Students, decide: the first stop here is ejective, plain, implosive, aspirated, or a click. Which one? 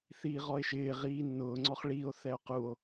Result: click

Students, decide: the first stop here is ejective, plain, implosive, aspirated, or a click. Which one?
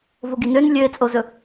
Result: plain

